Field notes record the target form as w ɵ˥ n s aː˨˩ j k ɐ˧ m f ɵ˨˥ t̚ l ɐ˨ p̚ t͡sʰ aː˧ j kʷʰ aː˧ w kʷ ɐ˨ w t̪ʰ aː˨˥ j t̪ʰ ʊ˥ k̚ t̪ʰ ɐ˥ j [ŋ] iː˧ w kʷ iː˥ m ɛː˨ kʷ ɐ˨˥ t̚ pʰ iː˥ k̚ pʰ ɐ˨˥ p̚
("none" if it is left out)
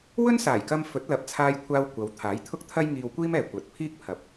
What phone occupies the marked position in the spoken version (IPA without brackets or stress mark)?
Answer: ŋ